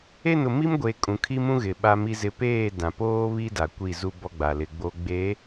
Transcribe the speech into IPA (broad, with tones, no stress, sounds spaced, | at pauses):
e˦˨ n ʊ˨ m i˦ m ɡʷ e˨ kʼ ũ˨ kʰ i˦ m ũ˦ ɣ ɪ˨ ɓ a˨ m i˨ z ɪ˨ p eː˦˨ d ã˨ p oː˦ β i˦ d a˨ kʷ i˦˨ z u˦ b ɔ˦ ɡ͡b a˨ l ɪ˨ ɡ͡b o˦ ɡ͡b e˨˦